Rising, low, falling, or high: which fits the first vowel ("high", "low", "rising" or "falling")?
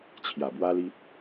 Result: low